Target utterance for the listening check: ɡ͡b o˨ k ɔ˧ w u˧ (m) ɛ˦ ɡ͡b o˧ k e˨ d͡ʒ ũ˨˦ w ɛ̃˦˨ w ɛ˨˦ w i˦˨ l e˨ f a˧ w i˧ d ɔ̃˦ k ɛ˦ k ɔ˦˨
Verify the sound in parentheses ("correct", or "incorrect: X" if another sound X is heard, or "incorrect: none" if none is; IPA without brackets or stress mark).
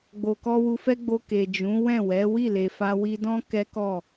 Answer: incorrect: f